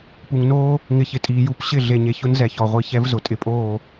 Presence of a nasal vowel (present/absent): absent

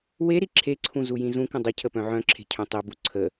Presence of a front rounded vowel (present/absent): present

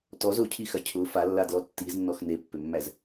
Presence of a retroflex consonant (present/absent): absent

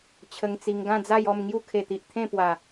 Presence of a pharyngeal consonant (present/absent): absent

